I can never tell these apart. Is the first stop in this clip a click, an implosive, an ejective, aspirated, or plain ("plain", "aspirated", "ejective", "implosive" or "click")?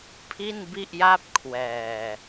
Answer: aspirated